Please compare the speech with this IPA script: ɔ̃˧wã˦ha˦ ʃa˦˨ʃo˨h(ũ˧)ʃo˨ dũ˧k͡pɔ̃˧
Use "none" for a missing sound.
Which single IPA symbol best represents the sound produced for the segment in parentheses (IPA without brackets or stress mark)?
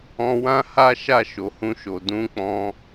ũ˧